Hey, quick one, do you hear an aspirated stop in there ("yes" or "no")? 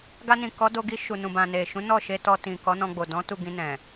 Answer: no